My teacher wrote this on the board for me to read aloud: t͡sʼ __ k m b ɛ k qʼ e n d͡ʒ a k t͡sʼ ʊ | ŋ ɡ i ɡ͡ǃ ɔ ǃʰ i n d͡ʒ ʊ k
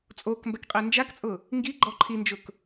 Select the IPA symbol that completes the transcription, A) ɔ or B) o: B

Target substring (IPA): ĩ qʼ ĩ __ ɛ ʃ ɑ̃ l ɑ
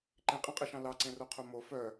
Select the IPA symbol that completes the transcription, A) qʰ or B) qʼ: B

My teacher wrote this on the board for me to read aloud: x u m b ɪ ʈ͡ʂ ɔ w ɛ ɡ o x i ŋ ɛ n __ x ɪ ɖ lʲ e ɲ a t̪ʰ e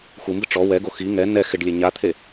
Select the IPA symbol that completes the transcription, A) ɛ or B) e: A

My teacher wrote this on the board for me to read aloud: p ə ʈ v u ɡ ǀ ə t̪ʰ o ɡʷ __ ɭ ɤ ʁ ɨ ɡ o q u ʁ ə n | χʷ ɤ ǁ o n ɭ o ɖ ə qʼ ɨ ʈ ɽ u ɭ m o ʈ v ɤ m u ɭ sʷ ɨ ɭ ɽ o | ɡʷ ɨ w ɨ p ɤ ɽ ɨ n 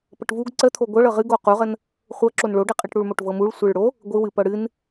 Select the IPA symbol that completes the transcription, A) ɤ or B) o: A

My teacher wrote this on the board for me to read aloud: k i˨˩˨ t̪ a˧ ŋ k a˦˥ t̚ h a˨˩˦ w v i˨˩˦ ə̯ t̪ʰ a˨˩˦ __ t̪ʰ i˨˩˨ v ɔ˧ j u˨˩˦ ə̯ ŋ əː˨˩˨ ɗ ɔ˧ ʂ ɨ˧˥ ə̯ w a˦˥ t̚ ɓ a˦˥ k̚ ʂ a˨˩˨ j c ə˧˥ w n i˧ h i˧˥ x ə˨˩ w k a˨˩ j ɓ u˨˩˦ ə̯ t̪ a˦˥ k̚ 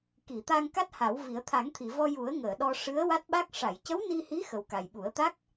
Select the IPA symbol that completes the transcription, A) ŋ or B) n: A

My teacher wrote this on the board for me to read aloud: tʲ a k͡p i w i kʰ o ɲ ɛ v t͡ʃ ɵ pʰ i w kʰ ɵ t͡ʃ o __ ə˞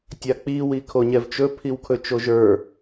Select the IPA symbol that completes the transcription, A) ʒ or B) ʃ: A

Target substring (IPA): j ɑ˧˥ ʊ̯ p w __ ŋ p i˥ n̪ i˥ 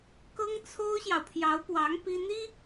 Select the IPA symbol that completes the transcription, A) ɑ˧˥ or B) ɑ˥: A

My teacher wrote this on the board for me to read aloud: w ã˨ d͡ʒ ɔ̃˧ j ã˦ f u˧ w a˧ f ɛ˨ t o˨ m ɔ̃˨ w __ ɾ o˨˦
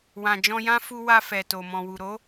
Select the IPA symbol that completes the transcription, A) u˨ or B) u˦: A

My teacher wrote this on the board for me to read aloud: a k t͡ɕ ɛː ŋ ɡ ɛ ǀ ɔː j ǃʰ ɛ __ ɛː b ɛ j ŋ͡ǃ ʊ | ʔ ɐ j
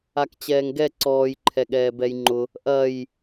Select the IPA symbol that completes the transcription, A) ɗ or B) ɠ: B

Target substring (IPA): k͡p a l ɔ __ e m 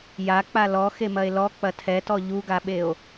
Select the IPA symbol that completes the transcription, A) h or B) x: B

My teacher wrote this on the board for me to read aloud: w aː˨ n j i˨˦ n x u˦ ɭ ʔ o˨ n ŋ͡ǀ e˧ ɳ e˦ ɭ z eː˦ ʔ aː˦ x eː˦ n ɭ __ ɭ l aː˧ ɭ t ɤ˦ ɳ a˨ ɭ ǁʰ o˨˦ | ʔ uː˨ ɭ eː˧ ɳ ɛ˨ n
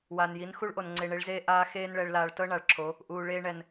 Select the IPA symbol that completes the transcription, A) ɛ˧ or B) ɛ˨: A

